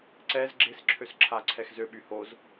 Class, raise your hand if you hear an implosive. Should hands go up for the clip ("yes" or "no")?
yes